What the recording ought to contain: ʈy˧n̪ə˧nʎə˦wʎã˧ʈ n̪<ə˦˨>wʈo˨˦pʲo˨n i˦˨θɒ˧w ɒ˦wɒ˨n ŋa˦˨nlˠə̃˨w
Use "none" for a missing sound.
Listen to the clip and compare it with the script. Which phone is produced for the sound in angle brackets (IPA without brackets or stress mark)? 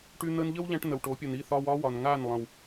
ə˨